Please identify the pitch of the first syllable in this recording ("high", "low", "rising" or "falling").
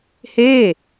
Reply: falling